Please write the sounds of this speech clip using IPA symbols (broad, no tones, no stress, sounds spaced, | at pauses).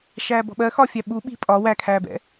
ʃ æː b ɔ̤ ɓ ɜ x ɒ fʲ æ ɓ u ɓ i̤ pʼ ɒ w æ kʰ æː b ɛ̰